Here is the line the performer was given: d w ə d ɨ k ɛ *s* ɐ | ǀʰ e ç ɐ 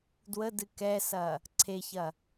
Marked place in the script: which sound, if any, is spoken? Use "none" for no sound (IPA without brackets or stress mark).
s